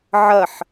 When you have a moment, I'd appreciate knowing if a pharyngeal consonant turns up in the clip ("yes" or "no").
yes